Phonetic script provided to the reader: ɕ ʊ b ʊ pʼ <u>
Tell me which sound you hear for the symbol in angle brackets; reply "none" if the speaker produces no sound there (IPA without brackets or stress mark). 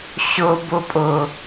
ʊ